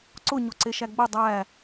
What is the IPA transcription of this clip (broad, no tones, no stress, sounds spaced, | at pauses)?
ǀ ʊ ɲ o ǀ e ʃ æ ɡ͡b ʊ dˤ æ